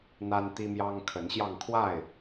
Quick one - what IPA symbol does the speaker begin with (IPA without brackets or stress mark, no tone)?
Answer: n̪